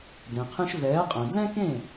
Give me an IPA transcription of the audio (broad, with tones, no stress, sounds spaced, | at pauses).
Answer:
d ẽ˩ qʰ ĩ˧ ʃ v ɛː˩˥ qʼ ɛ̃˩ d l ɛ̃˥ k ẽ˥˩